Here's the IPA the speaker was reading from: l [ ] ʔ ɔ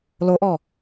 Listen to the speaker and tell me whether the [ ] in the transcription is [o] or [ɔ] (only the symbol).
o